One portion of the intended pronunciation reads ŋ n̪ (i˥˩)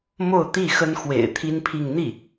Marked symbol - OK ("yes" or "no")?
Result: yes